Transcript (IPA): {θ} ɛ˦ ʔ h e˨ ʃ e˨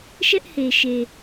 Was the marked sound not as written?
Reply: yes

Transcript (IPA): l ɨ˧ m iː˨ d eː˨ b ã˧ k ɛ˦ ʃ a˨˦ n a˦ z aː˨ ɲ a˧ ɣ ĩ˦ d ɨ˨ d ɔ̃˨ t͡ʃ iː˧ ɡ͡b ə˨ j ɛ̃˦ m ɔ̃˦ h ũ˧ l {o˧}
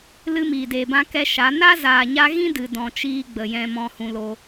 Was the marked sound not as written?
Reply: no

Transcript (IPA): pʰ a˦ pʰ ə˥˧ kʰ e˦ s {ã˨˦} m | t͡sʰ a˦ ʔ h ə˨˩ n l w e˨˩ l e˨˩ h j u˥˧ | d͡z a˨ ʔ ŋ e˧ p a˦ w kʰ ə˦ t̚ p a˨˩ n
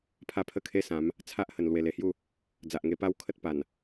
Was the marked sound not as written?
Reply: no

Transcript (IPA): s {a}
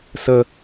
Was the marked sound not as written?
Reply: yes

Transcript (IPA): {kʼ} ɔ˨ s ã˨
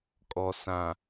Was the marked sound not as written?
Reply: no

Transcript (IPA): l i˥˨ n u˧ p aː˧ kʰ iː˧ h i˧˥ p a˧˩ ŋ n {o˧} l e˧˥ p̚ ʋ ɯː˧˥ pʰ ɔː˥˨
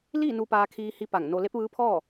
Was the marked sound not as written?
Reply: no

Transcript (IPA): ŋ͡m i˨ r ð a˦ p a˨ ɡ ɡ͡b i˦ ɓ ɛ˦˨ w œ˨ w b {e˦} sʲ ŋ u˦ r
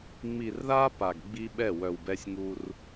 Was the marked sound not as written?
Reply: yes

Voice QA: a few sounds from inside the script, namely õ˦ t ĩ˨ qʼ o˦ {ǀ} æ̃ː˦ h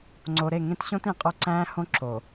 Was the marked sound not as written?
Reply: no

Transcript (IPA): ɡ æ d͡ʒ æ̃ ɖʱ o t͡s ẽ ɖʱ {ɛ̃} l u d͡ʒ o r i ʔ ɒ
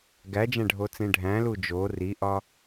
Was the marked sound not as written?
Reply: yes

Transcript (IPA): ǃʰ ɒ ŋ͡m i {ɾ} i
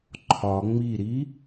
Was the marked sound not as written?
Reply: no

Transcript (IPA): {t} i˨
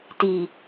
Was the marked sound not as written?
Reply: no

